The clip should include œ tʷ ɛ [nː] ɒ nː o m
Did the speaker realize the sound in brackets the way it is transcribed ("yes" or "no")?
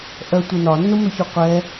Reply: no